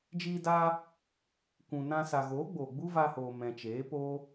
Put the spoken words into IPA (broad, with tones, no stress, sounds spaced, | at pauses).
d͡ʒ iː˧ d aː˧ | kʷ ũ˨ n ã˧ s a˨ ɣ oː˨˦ ɡ͡b oː˨ ɡ͡b u˦ v a˧ h oː˨ m ɛ̃˨ t͡ʃ eː˨˦ p oː˦